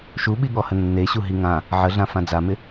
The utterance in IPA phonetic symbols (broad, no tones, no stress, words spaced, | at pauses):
ʃuɓiɠɔhə nːeɕu ɦiŋã | ʕəɮã fãd͡zamɪ